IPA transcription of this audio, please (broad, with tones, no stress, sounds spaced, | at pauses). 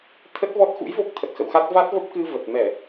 t̪ʰ ə˦˥ t̚ v ɔ˦˥ t̚ x ṵ˧˥ j v o˦˥ k̚ t̪ʰ ə˨˩ t̚ x ə̰˧˨ w x a˦˥ t̚ v a˦˥ t̚ v ə˦˥ p̚ k ɨ˧ v ə˨˩ t̚ m ɛ˧˩˨